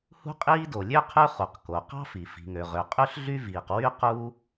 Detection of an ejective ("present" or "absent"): present